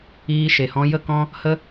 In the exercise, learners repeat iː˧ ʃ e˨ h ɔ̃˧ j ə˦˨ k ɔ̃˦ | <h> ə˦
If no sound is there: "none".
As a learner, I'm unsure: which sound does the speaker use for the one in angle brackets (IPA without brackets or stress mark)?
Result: h